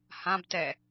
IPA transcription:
h ã b t ɛ

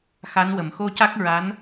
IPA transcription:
x a˧˥ n w ə˨˩˨ m x o˧ c a˦˥ k̚ ɹ a˧˥ n

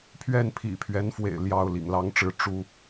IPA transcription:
pʰ ɥ ɛ˥˩ n pʰ ḭ˨˩ pʰ ɥ ɛ˧˥ n f w ḛ˨˩ ɪ̯ l j ɑ˥˩ ʊ̯ l ḭ˨˩ ŋ l ɑ˥ ŋ ʈ͡ʂ ɻ̩˥˩ ʈ͡ʂ u˥

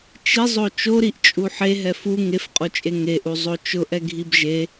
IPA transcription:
t͡ʃ i zˤ o t͡ʃ o ɾ i ʔ t͡ʃʼ u ħ e ɦ ɛ f u ŋ e f qʼ o t͡ʃʼ e ŋ e ʔ u zˤ o t͡ʃ ʊ ʔ ɛ ɡʱ i b ʒ e

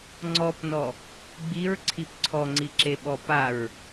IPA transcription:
ŋ͡ǀ ɔ p n ɔ | ɡ͡b i ɹ ǀʰ i p ǀʰ ɔ ŋ͡ǀ i ǁ e ɓ ɔ p a ɹ

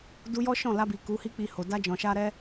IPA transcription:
d u˧ j ɔ˦ ʃ ɔ̃˦˨ l a˧ b i˨ k u˨˦ h i˦ k͡p i˧ h o˨ d a˧ d͡ʒ ɔ̃˨ ʃ a˧ ɾ ɛ˧

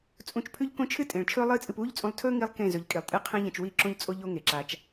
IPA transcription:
t͡sʼ ũ˧ t͡ʃ pʰ ʉ˦ ʎ k õ˦ t͡ʃʰ ɨ˦ tʼ ẽ˨ ɭ t͡ʃʰ ɵː˦ lˠ ɨː˦ t͡sʼ ɨ˧ p uː˦ ʎ t͡sʼ ũ˧ lˠ tʰ ɵː˦ ŋ i˦ lˠ k ẽ˦˨ z ɵ˨˦ ʎ kʼ i˨ lˠ tʼ ɨ˦˨ qʰ ẽ˦ ʎ ɐ̃˧ t͡ʃ w i˦˨ ǁ õ˦ ʎ t͡sʼ o˦ ʎ o˦ ŋ e˨ ǁ a˧ t͡ʃ

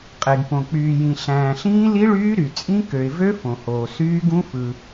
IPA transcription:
qʼ e˩ ɡ p õ˩ k͡p yː˩ j ĩ˩ ɬ æ̃ː˩ ɬ ĩː˦˥ l i˦˥ ɭ yː˦˥ ɾ y˩ t͡sʼ ĩ˦˥ k ø˩ ɪ̯ v ø˦˥ f õ˩ h oː˩ s yː˦˥ ɡ ũ˦˥ f ɯ˩

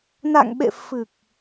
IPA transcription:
n a̰˧˨ ŋ ɓ ḛ˧˨ f ɨ˨˩ k̚

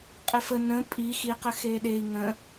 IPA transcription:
qʼ e f ə n ə̃ pʼ i x i q ə x e ɗ e i̯ ŋ ə̃

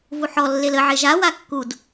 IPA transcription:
v u ħ ɔ lː e l ə ʕ e ʒ a w a kː u d

